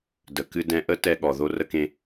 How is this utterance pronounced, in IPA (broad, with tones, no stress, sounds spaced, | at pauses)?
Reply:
d ə˨ k ɨ˧ d ɛ̃˧ ʔ ə˦ t ɛ˧ ɠ ɔ˨ ð o˦ r ə˦ k ẽ˦